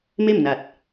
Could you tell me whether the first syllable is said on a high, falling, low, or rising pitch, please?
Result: falling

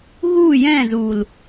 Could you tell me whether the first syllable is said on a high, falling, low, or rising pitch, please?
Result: falling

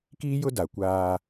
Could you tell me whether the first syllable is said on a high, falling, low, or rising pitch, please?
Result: high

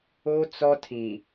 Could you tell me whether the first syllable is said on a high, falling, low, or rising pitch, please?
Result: high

